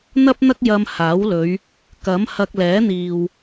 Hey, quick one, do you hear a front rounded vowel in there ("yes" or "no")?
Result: no